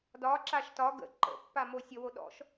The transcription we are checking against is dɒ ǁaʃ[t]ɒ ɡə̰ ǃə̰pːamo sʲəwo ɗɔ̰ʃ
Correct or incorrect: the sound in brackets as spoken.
correct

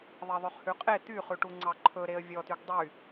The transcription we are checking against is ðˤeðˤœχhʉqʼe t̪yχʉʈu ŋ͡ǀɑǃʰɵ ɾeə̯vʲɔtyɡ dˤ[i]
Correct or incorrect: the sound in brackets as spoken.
incorrect: y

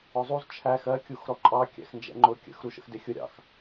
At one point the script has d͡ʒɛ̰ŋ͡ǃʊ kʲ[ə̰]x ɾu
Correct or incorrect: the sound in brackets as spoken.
correct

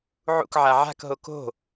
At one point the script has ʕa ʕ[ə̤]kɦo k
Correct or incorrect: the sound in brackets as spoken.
incorrect: a̤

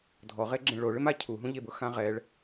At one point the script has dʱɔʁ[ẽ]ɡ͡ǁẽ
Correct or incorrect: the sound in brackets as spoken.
incorrect: e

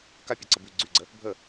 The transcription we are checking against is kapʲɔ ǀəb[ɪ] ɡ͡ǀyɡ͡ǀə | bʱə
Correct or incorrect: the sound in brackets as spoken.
incorrect: y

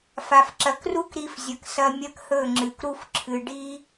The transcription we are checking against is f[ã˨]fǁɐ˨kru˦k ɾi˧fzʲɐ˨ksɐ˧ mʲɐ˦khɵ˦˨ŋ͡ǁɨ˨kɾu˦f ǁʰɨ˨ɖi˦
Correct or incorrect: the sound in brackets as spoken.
incorrect: a˨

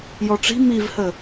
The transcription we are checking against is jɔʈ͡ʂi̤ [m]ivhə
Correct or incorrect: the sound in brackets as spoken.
correct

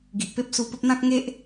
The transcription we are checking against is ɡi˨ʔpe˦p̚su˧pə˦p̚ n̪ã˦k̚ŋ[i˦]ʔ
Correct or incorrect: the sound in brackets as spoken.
incorrect: e˦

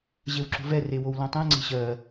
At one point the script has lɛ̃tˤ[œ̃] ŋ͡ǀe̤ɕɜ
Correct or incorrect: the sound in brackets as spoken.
incorrect: ɛ̃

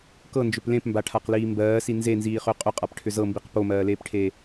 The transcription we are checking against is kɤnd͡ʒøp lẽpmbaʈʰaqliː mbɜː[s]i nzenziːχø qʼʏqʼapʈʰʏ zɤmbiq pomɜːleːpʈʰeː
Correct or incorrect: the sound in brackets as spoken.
correct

